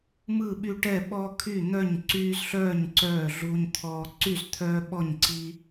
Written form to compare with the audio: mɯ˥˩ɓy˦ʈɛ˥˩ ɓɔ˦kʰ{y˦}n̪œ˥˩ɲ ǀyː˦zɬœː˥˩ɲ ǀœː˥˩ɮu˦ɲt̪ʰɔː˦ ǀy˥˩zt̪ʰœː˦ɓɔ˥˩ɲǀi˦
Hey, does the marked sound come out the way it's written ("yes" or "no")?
no